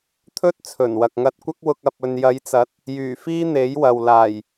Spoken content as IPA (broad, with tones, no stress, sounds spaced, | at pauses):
t̪ʰ ɵ˥ t̚ t͡sʰ ɵ˨˩ n w ɐ˨ k̚ ŋ ɐ˧ t̚ kʷ ɐ˥ k̚ w ʊ˧ k̚ ɐ˨ p̚ ɵ˨ n j ɐ˨˧ j t͡s ɐ˨˥ t̚ | j yː˨˩ f iː˥ n̪ e˨˥ j w ɐ˨ w l aː˨˩ j